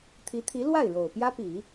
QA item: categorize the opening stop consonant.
aspirated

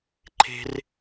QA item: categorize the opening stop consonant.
click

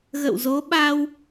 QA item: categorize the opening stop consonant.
implosive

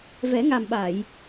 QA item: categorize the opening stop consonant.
implosive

